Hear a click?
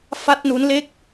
no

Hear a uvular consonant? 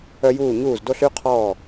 yes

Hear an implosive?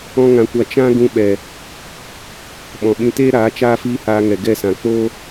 yes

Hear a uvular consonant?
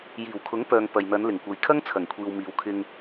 no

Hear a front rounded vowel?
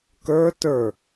no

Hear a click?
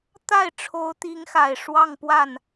no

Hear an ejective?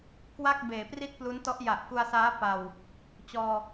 no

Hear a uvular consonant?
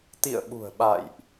no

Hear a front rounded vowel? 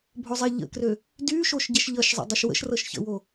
yes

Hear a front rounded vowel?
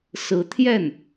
no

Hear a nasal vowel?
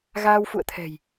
no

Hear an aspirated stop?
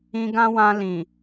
no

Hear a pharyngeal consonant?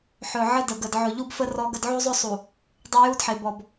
yes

